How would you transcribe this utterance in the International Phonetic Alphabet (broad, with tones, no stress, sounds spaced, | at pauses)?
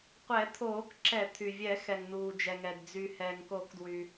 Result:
qʷ ɛ˨˩˦ t̪ʰ oː˨˩˦ k ǁ ɛ˨˩˦ t̪ʰ y˩ vʲ ɛ˨˩˦ x ɛ˩ ŋ n uː˩ d͡ʒ ɛ˩ ŋ ɛ˩ d d͡z y˩ h ɛː˩ ŋ k o˨˩˦ k d w y˩